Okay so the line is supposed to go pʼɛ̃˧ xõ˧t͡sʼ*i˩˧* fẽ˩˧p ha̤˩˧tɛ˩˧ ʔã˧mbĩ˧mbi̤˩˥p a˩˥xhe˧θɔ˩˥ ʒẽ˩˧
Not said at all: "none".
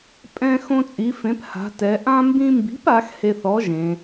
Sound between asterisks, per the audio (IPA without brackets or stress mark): i˩˧